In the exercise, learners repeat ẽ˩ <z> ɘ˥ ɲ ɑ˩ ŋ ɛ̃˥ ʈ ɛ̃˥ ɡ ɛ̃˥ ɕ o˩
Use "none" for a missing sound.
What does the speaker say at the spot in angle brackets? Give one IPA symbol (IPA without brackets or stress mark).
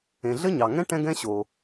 ɮ